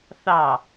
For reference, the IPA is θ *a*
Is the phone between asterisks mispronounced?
yes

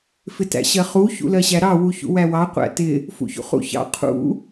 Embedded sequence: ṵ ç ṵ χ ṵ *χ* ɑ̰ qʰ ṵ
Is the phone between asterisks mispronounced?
yes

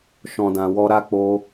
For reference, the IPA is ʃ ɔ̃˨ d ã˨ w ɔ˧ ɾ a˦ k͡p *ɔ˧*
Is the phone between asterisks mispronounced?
yes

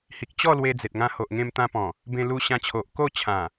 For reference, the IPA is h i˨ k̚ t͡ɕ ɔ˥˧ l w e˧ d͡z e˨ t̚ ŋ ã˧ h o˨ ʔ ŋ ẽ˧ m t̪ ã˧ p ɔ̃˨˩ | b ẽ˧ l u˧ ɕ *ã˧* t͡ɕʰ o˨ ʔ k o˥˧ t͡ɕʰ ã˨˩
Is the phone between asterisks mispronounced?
no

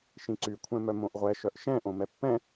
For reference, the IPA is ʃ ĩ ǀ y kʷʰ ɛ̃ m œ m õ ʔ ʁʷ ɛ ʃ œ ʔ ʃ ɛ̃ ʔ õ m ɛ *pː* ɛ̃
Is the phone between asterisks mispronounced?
no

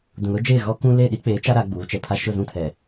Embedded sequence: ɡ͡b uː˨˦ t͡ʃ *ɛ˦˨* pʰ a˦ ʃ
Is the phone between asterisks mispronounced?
yes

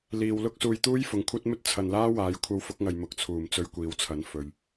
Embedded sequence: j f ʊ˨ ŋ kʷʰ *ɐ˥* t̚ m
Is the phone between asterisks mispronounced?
no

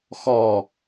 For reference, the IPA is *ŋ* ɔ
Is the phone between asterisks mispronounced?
yes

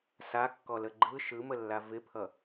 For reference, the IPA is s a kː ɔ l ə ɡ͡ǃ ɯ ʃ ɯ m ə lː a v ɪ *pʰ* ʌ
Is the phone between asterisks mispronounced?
no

